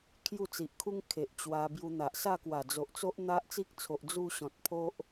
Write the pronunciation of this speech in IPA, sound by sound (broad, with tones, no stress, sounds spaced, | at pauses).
kʰ j u˥˧ t͡s i˨ ʔ kʰ u˦ ŋ kʰ e˨ ʔ t͡ɕ w a˧ b j u˧ n̪ a˨ ʔ s a˥˧ k w a˨˩ d͡z o˨ ʔ t͡s o˦ ʔ n̪ a˦ ʔ t͡s i˦ k̚ t͡sʰ o˨ ʔ d͡z u˥˧ ɕ ɔ̃˨ t̚ pʰ o˦ ʔ